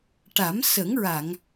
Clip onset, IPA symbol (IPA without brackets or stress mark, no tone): ʈ